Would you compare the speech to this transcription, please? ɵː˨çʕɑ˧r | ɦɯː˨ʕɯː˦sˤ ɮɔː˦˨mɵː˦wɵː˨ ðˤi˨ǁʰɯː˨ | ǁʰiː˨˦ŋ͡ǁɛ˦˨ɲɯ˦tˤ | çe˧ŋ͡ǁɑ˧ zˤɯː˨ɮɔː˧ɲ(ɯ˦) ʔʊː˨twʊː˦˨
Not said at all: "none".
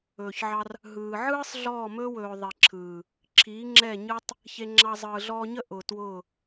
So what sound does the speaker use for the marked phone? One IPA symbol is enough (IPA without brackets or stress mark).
ə˦